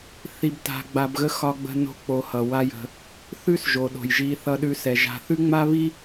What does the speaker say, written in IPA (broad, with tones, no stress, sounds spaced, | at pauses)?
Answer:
θ i˨ b t a̤˨ ɡ͡b a˨ b ɣ ə˦ x ɒ˦ ɡ͡b ə̤˦ n o̤˦ k͡p o˨ h ʌ˩ w a˦ j ə̤˨ | θ ʉ˦ s ʒ o˩ ɗ o̤˩ j ʒ i˨ θ ʌ˨ ɗ ʉ˨ s ɛ˩ ʒ a̤˨ θ ʉ˥ ŋ͡m a˥ β i˥